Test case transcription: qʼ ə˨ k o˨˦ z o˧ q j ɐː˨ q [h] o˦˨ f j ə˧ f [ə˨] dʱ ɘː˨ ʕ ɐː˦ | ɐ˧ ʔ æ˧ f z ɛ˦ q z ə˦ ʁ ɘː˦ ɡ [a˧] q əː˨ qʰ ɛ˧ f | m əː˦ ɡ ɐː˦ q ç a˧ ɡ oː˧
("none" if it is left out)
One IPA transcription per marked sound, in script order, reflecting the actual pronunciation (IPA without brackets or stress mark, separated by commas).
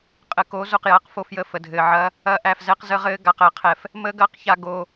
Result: f, ə˨, a˧